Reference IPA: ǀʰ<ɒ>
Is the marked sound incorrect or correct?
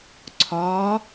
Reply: correct